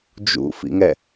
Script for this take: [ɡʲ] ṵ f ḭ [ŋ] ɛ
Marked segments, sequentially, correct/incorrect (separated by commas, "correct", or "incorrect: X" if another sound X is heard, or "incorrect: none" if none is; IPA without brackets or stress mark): incorrect: d͡ʒ, correct